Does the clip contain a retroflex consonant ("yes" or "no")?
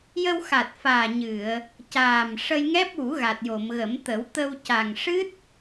yes